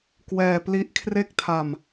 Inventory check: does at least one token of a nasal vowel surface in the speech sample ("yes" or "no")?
no